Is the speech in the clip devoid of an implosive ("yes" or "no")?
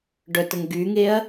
yes